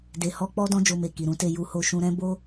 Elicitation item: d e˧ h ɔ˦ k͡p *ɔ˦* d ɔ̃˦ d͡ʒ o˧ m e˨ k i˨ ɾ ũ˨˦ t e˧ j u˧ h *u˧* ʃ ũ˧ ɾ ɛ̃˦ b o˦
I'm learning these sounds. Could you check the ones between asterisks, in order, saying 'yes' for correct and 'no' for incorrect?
yes, no

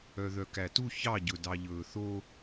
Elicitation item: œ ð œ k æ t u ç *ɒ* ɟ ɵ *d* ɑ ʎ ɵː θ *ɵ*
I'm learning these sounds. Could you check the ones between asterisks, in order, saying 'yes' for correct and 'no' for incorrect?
no, yes, no

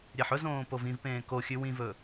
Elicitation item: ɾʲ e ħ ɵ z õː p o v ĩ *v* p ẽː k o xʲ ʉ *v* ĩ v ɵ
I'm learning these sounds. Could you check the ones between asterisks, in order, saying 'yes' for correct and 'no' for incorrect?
yes, no

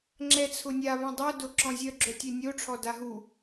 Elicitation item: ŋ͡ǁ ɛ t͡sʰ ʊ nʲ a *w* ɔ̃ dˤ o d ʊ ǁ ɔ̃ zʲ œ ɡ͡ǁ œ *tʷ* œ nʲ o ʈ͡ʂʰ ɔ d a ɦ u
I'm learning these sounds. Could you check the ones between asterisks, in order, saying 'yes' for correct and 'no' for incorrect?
no, no

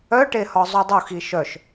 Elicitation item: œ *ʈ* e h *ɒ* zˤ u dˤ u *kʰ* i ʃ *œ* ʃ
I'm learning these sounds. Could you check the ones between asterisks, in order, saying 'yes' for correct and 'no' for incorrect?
yes, yes, no, yes

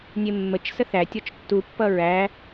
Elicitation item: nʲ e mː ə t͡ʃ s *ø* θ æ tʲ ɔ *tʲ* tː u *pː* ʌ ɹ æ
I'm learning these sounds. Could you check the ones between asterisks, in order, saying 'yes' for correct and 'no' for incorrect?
no, no, yes

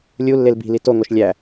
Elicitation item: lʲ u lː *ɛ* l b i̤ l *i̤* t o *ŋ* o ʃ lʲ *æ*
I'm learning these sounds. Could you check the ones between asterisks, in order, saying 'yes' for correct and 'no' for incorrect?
no, no, yes, yes

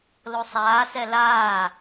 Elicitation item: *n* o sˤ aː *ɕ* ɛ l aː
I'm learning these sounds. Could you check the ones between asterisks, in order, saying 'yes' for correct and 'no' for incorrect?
no, no

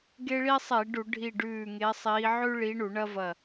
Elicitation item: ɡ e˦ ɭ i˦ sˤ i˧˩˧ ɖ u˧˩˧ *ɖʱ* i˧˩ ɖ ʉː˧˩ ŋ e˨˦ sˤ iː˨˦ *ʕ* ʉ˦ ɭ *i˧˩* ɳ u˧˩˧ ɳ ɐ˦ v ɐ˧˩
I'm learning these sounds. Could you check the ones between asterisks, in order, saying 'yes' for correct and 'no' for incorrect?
yes, yes, no

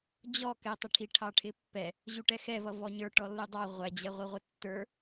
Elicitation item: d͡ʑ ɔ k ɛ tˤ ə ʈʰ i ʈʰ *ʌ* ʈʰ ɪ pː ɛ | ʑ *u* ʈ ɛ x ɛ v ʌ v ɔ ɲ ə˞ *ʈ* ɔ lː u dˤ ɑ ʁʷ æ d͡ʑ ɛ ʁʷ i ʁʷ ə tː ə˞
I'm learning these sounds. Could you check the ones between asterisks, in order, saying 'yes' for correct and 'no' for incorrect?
no, yes, yes

